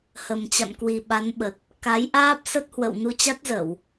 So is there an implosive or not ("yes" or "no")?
yes